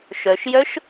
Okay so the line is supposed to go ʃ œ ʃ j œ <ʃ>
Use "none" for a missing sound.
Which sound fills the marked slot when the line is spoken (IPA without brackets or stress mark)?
ʃ